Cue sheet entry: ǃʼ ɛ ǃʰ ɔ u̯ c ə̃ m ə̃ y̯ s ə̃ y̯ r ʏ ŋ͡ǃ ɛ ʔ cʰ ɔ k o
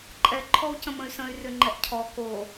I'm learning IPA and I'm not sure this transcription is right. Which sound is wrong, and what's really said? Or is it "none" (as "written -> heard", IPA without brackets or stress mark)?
none